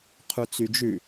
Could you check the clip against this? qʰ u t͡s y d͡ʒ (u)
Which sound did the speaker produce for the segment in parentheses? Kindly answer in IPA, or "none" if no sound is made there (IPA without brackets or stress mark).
ʉ